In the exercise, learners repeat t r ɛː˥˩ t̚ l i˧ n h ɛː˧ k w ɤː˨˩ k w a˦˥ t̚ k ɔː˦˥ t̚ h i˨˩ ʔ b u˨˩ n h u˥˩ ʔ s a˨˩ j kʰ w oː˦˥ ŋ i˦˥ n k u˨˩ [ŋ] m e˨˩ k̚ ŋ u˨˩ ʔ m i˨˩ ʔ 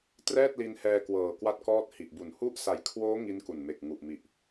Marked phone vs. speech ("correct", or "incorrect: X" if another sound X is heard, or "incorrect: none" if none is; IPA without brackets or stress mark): incorrect: n